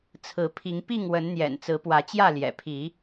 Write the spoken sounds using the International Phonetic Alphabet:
t͡sʰ ɹ̩˨˦ pʰ i˨˦ ŋ p i˥˨ ŋ w ə˨˦ n n̪ j ɛ̰˨˩ n t͡s ɹ̩˨˦ p w ä˨˦ t͡ɕ j ä˥˨ l j ɛ̰˨˩ pʰ i˨˦

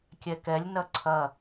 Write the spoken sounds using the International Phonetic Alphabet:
kʲ ɛ k ɛ lʲ n ɐ ǀʰ ɐ

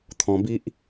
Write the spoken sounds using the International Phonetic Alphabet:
t̪ʰ ɔ̃˧ b i˦ ʔ

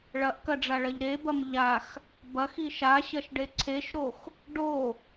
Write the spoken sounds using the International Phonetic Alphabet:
ɭ ɐ ʔ k ɐ ɖ͡ʐ a ɭ ɐ ʎ ɾ e b ɐ m ʎ a x | b ɐ x i ʃ a ɕ ɐ ʃ ɖ e ǀʰ e ʃ ɾ o x | ɖ o

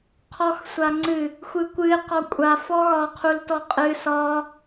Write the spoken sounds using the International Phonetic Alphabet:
qʰ ɔ x sʷ a ŋ͡ǀ ɨ | xʷ ɨ kʷ ɨ ɪ̯ q ɒ kʷʼ a f ɔ ɣ ɒ qʰ u l t ɔ qʼ ɨ s ɒ

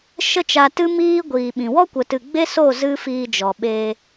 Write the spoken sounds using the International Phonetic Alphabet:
ʃ ə˦ t͡ʃ a˧ t ɨ˦ m iː˦ ɡʷ iː˨ ɓ ĩ˨ w ɔ˦ kʷ ə˧ t ɨ˧ ɡ͡b e˦ s o˦˨ z ɨ˦ f iː˧ d͡ʒ ɔ˨ ɓ eː˧

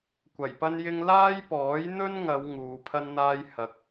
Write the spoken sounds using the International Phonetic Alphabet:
kʷ ɐ˨˩ j p ɐ˥ n j ɪ˥ ŋ l aː˥ j p ɔː˨˥ j n̪ ɵ˥ n ŋ ɐ˨˧ w ŋ uː˨˧ pʰ ɐ˥ n n̪ aː˥ j h ɐ˧ k̚

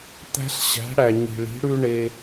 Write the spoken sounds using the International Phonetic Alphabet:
t̪ æ̤˦ ɬ ɕ æ̤˨˥ ɽ æ˨ ɲ i̤˨ ɭ i̤˨˥ ɽ ʉ˦ ɳ e˦

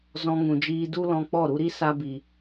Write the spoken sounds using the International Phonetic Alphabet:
z ɔ̃˧ ŋ ũ˨ d͡ʒ iː˧ d u˦ l ɔ̃˧ k͡p ɔ˦˨ ɾ u˧ ɾ i˦ s a˧ b i˨

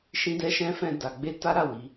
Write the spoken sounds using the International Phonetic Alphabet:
ʃ ĩ˦ d ɛ˦ ʃ ɛ̃˦ f ɛ̃˧ d a˨ ɡ͡b e˧ t a˦ ɾ a˦˨ w i˨˦

